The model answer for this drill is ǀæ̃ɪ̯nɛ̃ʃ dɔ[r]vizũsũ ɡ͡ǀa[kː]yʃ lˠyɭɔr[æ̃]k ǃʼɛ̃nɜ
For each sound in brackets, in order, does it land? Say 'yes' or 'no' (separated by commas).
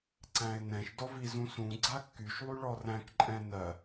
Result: no, yes, yes